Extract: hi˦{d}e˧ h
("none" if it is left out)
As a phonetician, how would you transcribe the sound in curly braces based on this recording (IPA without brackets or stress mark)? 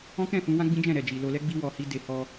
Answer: d